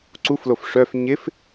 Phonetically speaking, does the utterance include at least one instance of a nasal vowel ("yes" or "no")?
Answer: no